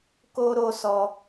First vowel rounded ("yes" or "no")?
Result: yes